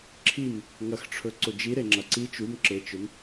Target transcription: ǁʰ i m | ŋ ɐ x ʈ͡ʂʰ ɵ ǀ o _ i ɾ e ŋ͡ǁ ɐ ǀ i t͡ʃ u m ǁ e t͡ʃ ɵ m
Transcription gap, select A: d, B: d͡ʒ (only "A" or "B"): B